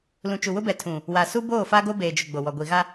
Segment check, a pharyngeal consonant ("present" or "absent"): absent